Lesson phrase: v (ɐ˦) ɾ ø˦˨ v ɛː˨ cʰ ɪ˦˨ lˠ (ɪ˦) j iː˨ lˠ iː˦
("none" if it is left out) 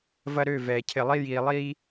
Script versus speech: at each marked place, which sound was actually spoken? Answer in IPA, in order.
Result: ɐ˦, i˦

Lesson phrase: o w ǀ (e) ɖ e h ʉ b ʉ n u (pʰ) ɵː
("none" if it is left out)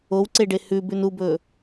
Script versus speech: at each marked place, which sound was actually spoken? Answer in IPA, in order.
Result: e, b

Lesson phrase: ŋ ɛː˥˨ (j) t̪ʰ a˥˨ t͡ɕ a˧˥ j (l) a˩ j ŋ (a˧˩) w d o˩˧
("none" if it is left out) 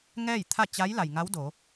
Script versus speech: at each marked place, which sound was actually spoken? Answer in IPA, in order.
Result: j, l, a˧˥

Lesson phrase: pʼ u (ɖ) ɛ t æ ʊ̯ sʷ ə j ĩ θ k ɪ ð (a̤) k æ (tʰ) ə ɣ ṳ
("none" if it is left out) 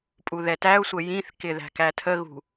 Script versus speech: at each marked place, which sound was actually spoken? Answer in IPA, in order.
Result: ð, æ̤, tʰ

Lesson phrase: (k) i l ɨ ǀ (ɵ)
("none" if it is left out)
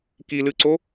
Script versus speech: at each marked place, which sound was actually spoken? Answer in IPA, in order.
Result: k, o

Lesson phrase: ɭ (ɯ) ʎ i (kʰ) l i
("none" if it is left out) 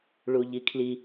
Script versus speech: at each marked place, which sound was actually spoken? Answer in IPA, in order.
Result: u, kʰ

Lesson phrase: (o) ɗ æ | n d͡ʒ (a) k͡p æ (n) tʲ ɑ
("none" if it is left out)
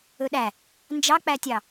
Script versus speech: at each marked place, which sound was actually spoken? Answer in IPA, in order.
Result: ɵ, ɑ, none

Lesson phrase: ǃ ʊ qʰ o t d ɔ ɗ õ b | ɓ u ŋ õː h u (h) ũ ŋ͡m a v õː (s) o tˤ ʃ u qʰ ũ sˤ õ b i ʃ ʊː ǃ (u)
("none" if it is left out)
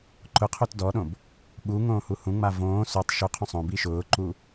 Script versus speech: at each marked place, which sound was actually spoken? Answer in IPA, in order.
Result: h, s, u

